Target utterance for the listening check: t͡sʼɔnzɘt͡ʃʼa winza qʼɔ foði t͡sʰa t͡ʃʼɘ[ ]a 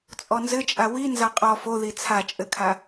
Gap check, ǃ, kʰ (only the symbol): kʰ